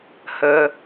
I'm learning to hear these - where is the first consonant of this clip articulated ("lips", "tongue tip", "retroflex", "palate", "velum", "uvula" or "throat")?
throat